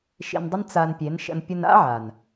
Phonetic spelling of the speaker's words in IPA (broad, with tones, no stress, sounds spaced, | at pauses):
ʃ ḭ˧ n dˤ i˦ n t͡s a˧ n pʲ e˨˦ n ʃ ə̰˧ n pʲ ʊ˧ n a̰˦ ʕ a˨ n